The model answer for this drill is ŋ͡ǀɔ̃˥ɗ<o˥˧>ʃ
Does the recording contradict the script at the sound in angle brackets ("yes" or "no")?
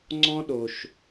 yes